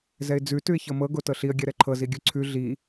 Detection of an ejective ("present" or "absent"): absent